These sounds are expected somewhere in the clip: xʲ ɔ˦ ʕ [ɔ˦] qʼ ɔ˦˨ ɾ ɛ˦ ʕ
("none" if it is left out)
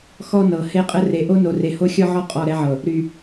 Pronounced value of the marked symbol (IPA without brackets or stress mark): ɔ˦